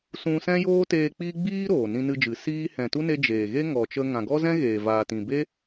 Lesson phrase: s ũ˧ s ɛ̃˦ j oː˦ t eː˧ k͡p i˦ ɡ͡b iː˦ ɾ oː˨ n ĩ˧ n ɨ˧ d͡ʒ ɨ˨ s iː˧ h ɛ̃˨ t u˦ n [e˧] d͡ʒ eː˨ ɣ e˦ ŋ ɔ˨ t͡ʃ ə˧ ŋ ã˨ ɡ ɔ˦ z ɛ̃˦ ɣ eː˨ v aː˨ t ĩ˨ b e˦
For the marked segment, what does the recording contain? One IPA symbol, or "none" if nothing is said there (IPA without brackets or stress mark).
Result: e˧